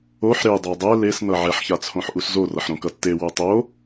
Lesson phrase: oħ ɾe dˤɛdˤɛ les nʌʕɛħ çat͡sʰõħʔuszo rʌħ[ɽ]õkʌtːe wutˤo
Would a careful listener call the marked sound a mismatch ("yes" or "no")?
yes